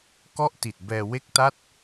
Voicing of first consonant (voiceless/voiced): voiceless